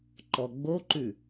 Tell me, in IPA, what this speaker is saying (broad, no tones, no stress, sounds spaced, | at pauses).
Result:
ǃ ɔ ɡ͡b o ǃ ʉ